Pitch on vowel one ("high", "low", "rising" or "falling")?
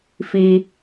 high